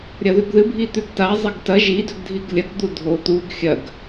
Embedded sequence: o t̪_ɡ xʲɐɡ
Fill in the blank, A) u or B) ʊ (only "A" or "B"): A